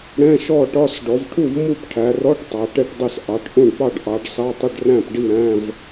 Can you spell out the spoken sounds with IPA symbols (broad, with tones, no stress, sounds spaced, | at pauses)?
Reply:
ɽ ɛ̃˧˥˧ ʃ ɔ˥˨ ʈ ɒ˧˥˧ s ɖ ɔ˩˧ v ʈʰ u˥˨ v m u˥˨ p ʈʰ æ˩˧ r ɔ˧˥˧ ʈ tˤ ɑ˩˧ ʈ ɛ˥˨ ʈ dˤ ɪ˥˨ s ʔ ɑ˩˧ ʈ ʔ ũ˥˨ ɖ p ɑ˥˨ ɖ ʔ ɑ˩˧ ɖ s ɑ˧˥˧ tˤ ʊ˥˨ ɖ r æ̃˥˨ p ɖ i˥˨ ɾ æ̃˧˥˧ v